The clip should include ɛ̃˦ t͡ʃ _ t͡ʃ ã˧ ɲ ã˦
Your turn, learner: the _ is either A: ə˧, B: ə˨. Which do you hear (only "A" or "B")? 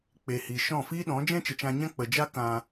B